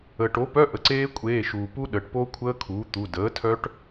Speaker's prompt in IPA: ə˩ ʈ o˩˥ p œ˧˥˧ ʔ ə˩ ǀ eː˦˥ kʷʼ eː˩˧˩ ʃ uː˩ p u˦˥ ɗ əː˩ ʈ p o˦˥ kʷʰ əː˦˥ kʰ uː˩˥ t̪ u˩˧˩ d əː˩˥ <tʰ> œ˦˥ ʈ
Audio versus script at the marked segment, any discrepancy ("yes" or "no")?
no